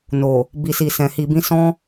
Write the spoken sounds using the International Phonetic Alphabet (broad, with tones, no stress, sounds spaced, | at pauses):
n o˨ | b i˨ s i˨ s ɛ̃˨ h i˨ b ĩ˧ s ɔ̃˦